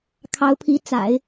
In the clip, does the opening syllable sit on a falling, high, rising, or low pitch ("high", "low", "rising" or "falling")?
rising